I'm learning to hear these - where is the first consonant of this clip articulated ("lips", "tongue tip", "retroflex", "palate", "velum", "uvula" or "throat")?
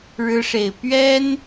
retroflex